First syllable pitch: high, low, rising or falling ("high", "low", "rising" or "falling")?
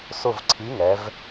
falling